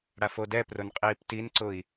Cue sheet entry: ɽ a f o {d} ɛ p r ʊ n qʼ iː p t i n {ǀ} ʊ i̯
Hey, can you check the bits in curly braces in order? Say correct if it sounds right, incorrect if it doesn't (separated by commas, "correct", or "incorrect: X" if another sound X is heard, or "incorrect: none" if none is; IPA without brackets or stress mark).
correct, correct